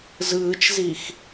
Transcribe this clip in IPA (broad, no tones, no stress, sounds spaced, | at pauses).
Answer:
z ɯː t͡ʃ z i x